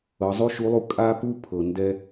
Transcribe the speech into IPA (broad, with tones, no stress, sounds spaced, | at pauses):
ɤ˩˧ zˤ u˥ ʃ u˧˥ lˠ u˧ kʼ a˥ p u˥ pʰ ɤ˩ n d ɛ˧